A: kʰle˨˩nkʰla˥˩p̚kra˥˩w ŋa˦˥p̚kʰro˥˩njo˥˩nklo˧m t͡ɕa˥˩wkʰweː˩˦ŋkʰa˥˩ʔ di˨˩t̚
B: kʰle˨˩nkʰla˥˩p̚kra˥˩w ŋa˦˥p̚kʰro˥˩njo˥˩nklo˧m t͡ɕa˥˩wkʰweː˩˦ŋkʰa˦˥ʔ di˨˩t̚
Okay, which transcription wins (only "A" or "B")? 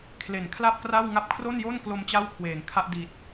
A